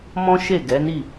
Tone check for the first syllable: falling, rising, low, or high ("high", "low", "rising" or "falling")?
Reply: high